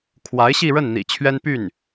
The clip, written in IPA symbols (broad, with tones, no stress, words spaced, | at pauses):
kʰwa˧˥ɪ̯ɕi˥˧ɻə˥˩nn̪ḭ˨˩ t͡ɕʰɥɛ˥n py˥˩n